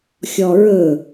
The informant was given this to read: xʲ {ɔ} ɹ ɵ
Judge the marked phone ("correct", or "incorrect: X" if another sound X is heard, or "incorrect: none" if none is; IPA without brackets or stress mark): correct